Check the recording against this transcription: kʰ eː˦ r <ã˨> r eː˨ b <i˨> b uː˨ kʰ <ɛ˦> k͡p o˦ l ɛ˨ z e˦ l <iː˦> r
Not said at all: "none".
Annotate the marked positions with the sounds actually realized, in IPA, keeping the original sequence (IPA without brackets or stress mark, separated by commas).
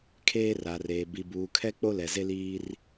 a˨, i˨, ɛ˦, iː˦